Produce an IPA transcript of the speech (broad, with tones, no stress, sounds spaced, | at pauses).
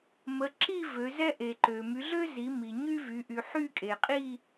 m ə˨˦ ǁ i˥˧ v ø˨˦ z ɛ˥ ʔ e˨ ǃ ø˨ m y˨˦ ɮ ø˥ z i˨˦ m i˨ ɲ y˥ v y˨˦ ʔ y˨ ħ y˥˧ kʼ e˨ qʼ i˥˧